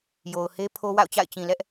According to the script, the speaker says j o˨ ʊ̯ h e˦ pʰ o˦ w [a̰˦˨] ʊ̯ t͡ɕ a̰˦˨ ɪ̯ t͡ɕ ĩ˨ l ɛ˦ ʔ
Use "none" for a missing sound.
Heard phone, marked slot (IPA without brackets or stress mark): a̰˦˨